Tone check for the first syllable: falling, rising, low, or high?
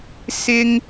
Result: high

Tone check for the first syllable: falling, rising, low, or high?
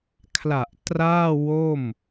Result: low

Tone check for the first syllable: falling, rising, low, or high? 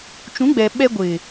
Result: rising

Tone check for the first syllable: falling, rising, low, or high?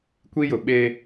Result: high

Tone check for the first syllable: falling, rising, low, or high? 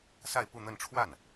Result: falling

